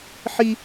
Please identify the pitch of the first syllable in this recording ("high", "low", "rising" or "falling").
high